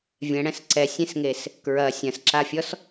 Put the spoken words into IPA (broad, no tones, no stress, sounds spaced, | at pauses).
vʲ ɛ̃ ɽ ɛ̃ s ǀ ɛ sʲ ẽ s ŋ e s | k ɹ ɐ sʲ ɐ̃ s ǁ a fʲ ɔ s